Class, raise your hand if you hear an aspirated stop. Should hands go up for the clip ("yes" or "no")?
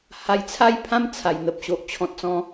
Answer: yes